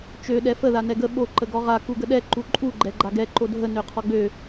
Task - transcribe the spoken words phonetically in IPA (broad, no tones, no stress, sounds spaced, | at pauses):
t͡ʃ ø ɗ ɛ f ə ð a n ɛ ɡ ə ɓ o ǃ ə ɡ ɔ ʁ a k u ɡ ə ɗ ɛ ǃ u ǃʼ u ɡ͡ǃ ɛ ɡ͡ǃ a ɡ ɛ ǃ o dʱ ə n ø qʰ ɔ ɡ͡b ø